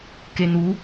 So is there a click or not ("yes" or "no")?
no